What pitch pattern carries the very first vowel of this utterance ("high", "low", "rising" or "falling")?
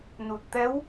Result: low